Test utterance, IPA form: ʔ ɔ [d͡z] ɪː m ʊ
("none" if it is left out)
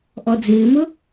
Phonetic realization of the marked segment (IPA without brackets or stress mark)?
d͡z